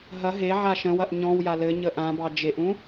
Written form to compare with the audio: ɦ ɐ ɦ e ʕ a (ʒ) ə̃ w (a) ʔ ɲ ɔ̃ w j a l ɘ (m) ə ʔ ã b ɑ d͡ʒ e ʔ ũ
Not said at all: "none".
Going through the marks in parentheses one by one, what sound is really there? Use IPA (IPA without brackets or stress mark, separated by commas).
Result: ʃ, ɐ, ɲ